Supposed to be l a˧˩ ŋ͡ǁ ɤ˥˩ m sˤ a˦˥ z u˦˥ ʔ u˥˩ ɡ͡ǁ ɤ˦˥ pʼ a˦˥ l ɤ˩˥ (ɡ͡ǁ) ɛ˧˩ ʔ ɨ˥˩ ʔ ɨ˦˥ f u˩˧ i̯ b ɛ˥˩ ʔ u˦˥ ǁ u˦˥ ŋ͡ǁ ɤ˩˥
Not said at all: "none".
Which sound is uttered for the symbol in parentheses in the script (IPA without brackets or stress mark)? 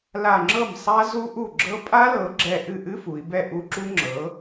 ɡ͡ǁ